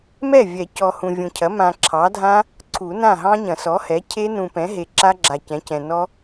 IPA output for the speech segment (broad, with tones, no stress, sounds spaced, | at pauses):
m ɛ˥˩ vʲ ɛ˨˩˦ c ɔ˨ h ũ˨ vʲ ũ˨ cʰ ɐ˩˥ m ã˨ ǁʰ ɑ˩˥ dʱ ã˦˥ | ǀʰ u˨˩˦ n ã˥˩ ɦ ɑ̃˦˥ ɲ ɐ̃˨˩˦ s ɔ˩˥ h ɛ˩˥ cʰ e˦˥ n ũ˨ p ɛ̃˩˥ ɦ e˨ ǁ a˦˥ ɡ͡ǁ a˨ c ɛ̃˩˥ c ɛ̃˨ n ɔ˦˥